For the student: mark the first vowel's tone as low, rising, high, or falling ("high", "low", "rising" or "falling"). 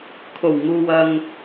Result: low